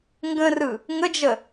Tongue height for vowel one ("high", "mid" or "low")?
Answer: mid